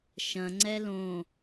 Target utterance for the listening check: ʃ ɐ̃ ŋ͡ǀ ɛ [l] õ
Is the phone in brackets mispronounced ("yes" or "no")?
no